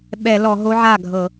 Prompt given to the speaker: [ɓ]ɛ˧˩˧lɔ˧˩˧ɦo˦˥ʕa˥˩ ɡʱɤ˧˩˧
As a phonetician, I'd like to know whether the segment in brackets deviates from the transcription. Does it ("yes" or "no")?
no